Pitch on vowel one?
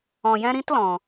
low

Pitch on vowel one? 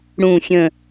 falling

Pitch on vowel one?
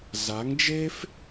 rising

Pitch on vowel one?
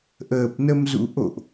low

